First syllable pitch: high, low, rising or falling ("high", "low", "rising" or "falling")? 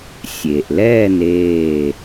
low